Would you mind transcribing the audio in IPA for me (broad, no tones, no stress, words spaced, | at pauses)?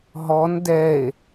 ɦɔn dɛe̯